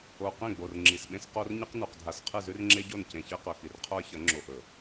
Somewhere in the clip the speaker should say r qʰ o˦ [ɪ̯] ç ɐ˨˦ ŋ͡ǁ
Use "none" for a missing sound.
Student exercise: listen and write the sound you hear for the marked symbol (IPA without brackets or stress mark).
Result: ə̯